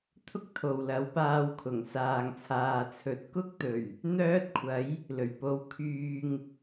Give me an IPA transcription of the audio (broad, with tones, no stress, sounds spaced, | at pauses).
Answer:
t̪ʰ ʊ˥ k̚ t̪ʰ o˨ w l ɐ˨˥ w p aː˧ w kʰ ʊ˨˩ ŋ s aː˨ ŋ t͡sʰ aː˨ t͡sʰ ɵ˨˥ t̚ k ʊ˥ k̚ t̪ ɵ˨˩ ɥ | n̪ œː˥ t̚ kʷʰ ɐ˨˥ j | l ɵ˨˩ ɥ p o˨˥ w kʰ yː˨ ŋ